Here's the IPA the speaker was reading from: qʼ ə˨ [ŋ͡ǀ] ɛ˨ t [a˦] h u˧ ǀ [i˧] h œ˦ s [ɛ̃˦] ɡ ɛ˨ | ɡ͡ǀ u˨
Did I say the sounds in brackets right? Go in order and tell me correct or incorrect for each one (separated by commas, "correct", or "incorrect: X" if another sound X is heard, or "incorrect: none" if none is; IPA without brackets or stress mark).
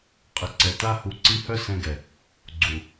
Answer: incorrect: ǀ, correct, correct, incorrect: ɛ̃˧